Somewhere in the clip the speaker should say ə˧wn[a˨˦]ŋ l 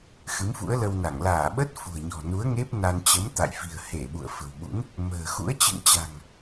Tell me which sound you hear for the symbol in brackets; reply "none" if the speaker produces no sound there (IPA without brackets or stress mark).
a˧˩